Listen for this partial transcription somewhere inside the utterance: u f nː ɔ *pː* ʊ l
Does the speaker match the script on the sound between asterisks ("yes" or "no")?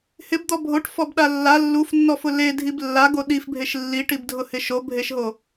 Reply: no